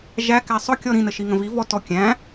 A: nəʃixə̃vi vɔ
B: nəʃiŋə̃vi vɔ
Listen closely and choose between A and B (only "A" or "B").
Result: B